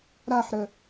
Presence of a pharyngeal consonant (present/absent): present